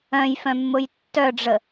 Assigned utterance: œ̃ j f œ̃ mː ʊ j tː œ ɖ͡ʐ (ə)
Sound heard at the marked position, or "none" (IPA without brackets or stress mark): ə